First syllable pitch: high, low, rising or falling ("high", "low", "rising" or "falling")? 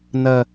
low